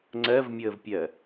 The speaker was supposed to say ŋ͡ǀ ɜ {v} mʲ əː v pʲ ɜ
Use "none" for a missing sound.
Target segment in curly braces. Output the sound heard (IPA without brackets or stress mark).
v